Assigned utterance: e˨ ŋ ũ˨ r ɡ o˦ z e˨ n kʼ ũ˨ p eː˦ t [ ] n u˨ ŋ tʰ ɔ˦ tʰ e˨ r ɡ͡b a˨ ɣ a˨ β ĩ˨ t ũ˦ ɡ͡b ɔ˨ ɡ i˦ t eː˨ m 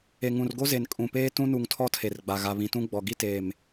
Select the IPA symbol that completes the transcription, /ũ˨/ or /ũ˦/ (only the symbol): ũ˦